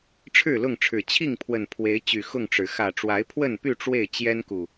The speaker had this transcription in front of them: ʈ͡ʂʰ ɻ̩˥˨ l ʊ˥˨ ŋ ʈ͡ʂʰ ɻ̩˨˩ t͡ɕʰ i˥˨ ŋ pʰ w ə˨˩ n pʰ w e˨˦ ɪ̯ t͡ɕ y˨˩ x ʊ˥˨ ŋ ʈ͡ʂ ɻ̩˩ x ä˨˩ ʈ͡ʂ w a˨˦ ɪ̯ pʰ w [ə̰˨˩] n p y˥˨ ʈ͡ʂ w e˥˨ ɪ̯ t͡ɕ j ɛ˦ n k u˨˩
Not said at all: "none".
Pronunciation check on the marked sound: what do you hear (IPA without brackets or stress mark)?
ə˥˨